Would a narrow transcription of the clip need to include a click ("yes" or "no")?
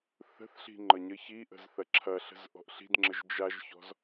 yes